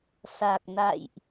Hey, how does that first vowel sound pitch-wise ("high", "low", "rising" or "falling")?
low